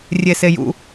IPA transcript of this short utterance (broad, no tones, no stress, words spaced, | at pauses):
rʲesejṵ